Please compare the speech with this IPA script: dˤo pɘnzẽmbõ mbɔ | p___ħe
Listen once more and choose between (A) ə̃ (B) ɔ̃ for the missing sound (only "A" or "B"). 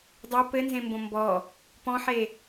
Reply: B